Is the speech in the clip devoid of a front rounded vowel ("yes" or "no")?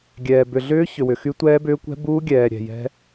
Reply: no